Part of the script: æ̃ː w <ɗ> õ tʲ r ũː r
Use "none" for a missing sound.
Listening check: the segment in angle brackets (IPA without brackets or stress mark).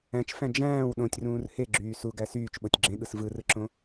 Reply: ɗ